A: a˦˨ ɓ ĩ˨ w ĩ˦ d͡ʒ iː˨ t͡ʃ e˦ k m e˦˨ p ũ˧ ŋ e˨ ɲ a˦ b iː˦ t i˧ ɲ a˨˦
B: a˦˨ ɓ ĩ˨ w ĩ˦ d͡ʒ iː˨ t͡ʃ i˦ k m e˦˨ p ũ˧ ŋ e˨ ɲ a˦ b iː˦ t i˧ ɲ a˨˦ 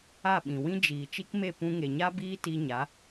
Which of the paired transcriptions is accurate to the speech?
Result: B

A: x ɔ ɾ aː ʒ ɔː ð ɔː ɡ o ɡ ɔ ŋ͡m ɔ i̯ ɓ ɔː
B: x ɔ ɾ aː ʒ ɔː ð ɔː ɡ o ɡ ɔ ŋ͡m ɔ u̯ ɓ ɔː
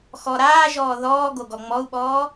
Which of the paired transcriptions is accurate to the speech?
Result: B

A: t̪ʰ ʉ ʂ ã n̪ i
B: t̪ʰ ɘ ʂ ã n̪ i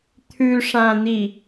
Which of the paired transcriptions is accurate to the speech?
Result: A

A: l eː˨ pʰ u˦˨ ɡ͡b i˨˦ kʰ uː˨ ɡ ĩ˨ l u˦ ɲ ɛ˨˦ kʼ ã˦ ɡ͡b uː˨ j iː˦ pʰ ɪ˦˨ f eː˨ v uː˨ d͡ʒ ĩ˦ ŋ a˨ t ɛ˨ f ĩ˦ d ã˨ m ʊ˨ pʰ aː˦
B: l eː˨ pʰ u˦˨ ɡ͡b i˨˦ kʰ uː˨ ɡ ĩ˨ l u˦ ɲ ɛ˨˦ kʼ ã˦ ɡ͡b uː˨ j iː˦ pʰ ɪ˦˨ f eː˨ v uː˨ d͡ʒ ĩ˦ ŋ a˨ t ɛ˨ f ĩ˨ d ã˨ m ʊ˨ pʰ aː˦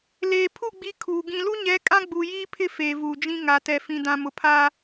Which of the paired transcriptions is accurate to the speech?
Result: B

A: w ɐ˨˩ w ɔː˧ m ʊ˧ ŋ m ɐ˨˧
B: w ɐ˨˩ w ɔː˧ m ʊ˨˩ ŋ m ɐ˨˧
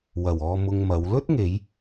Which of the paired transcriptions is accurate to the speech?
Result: A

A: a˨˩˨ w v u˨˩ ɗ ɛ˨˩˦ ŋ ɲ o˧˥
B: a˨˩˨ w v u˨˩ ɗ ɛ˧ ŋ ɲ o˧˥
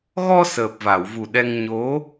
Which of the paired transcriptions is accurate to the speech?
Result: B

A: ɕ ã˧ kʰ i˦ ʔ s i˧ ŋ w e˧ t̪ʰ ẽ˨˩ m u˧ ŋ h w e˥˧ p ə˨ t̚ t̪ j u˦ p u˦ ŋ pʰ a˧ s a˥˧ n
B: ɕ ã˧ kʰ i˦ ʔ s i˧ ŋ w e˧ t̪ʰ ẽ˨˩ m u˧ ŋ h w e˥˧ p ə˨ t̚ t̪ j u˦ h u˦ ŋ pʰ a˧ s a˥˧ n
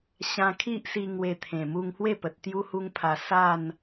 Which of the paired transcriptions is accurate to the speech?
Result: B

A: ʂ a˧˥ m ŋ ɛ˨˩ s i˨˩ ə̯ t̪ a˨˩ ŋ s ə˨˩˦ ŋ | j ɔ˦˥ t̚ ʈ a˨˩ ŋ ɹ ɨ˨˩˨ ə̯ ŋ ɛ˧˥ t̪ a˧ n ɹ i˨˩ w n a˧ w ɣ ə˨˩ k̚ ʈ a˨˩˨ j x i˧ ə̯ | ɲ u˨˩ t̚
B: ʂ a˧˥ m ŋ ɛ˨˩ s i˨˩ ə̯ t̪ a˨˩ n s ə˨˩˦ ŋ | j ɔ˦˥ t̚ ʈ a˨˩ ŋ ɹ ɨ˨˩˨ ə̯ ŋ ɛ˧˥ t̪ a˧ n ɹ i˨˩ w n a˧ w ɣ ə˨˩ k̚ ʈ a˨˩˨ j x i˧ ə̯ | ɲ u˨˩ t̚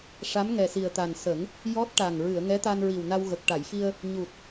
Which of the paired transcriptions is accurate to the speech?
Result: B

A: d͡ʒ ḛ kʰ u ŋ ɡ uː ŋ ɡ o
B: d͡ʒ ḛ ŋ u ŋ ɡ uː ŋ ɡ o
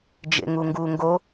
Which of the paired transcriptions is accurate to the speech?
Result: B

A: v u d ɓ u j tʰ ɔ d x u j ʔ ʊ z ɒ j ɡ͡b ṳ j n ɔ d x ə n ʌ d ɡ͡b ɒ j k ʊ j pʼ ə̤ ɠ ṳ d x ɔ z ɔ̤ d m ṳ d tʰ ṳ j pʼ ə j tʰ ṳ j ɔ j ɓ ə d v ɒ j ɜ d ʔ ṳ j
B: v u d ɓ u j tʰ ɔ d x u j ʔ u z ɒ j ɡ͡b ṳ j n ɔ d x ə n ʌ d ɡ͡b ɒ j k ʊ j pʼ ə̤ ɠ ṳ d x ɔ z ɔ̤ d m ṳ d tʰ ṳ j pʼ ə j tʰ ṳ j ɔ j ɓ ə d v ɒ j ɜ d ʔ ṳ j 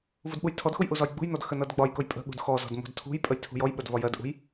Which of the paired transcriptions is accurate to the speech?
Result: B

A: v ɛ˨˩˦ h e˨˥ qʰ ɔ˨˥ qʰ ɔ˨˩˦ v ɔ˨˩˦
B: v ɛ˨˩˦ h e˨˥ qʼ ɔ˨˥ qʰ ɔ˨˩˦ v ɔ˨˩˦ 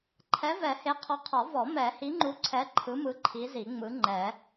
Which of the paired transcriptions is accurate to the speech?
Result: A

